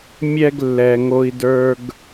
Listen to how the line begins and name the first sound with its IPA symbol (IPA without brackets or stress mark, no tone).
mʲ